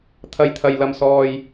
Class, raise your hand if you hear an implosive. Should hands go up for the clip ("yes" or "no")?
no